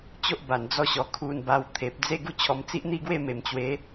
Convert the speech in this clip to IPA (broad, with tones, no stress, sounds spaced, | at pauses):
t͡ɕ o˦ ʔ b a˨˩ n d͡z ɔ˥˧ ɕ ɔ˨˩ kʰ u˧ n b a˧ w t̪ʰ e˨ p̚ d͡z e˥˧ ɡ u˥˧ t͡ɕʰ ɔ˧ m t͡s i˦ ʔ n̪ i˥˧ ɡ w e˥˧ m e˨˩ m t͡ɕ w e˨˦